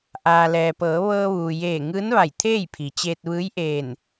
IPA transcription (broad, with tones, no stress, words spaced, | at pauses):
ʔaː˩lɛː˩pɤː˩˧ ʋɤː˧ʋuː˩jeː˧˩ ŋɯː˧˥nʋa˧˩j t̪ʰeː˥˨jpʰi˩t͡ɕeː˧t̚ ʋɯː˧˥jʔeː˧˩n